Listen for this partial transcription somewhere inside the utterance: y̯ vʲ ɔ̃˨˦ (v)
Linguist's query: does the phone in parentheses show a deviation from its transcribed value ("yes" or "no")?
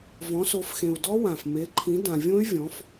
yes